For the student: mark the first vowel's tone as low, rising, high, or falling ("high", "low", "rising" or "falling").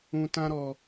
low